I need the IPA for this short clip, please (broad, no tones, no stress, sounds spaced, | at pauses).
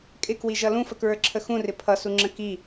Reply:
kʼ ɪ k w i ʒ ʌ l ũ f ə k ɹ ə˞ ǁʰ ə x ũ r ɪ pʰ ʌ s u ŋ͡ǁ ə̃ k i